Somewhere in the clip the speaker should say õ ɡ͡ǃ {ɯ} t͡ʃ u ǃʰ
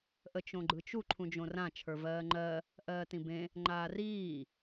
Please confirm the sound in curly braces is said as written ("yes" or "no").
yes